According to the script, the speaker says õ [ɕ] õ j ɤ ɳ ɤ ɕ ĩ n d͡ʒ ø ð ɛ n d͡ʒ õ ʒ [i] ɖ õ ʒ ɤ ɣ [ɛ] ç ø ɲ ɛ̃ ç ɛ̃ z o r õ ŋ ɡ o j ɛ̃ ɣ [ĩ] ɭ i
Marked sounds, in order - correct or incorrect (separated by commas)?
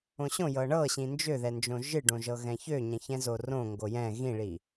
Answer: correct, incorrect, incorrect, correct